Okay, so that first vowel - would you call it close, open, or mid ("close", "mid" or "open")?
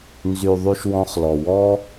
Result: close